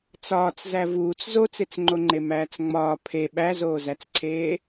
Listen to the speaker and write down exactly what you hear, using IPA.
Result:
t͡s ɒː t͡s z æ v uː t͡s z o t͡s e t͡s ŋ͡ǃ o ŋ͡ǃ e m æː t͡s ŋ͡m ɒː pʰ e ɓ æ z oː z æ t͡s ǀʰ eː

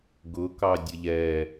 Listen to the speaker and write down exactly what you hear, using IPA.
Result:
ɡ ʊ k ɑ dʲ ə ʎ ɛ

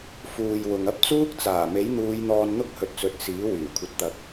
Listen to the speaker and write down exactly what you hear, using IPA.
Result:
f uː˨ j w ʊ˨ ŋ ɐ˥ p̚ t͡s uː˥ k̚ t͡s aː˨˩ m e˨˥ j n̪ uː˨˧ j n̪ ɔː˧ n n̪ ʊ˥ k̚ h ɵ˨ t̚ t͡s ɵ˨˥ t̚ s iː˨˥ w yː˨˩ kʷʰ ɐ˨ t̚ t̪ ɐ˨ k̚

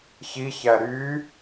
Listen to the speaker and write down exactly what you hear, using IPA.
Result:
ç i ç æ ɾ yː

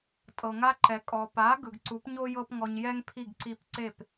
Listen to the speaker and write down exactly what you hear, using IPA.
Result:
tʼ ɤ˩ ŋ a˧ ǃ ɛ˩ kʼ ɔ˩ p a˩˥ ɡ ɯ˩ ɡ ǀ u˩˥ p ɲ o˥ j ɤ˥ p ŋ ɔ˧ ɲ j ɛ˥ ŋ pʰ i˥˩ ɡ ǀ i˧ p ǀ e˥˩ p

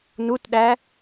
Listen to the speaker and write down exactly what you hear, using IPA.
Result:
n u t ɗ æ

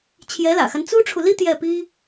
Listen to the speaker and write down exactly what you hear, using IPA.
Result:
t͡ɕʰ j ɛ˧˥ l ä̰˨˩ x a˦ n t͡s u˥ ʈ͡ʂʰ u˨ l i˥ t̪ j ɛ˥˩ p i˥

